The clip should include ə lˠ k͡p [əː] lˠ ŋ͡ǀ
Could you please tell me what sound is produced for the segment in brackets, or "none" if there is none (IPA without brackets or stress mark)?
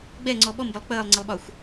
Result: əː